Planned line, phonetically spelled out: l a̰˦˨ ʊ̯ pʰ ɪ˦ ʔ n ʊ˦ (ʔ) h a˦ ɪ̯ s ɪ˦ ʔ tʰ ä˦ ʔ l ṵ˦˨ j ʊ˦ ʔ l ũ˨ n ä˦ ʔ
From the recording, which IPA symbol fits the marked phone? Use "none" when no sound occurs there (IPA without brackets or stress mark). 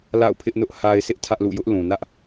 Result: ʔ